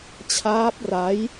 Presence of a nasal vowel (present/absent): absent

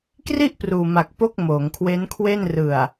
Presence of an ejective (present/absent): absent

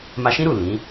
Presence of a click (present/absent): absent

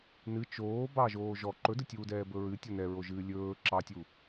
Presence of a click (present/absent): present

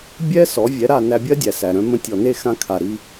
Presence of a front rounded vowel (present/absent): present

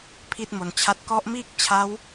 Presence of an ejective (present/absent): absent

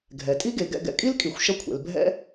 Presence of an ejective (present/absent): present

